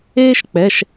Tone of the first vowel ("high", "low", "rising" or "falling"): high